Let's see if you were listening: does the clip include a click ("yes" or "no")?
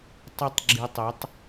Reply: yes